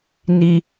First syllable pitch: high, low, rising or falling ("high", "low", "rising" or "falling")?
low